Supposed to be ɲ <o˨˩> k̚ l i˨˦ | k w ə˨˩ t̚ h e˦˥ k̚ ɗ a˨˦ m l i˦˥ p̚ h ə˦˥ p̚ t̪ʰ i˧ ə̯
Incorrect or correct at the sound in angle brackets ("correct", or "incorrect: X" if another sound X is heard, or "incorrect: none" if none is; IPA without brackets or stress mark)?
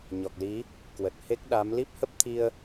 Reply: incorrect: ɔ˨˩